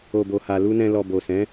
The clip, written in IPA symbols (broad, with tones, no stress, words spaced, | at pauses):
o˨bo˨ha˨ lu˧ nɛ̃˨ lɔ˨bo˨sɛ̃˨˦